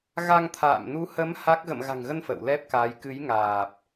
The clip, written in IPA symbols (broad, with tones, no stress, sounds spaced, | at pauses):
ɣ a˧ ŋ t̪ʰ a̰ː˧˨ m n u˨˦ h ə˨˦ m h a˦˥ k̚ ɣ ə̰˧˨ m ɣ a̤˨˩ ŋ ɣ ə˧ n f ə̰˧˨ w l ɛ˦˥ p̚ k aː˨˦ j k ɨ˨˦ j ŋ aː˨˩ p̚